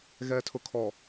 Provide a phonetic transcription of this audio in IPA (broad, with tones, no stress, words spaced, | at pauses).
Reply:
ɣɛ˨tʰʊ˨ kʰɔ˨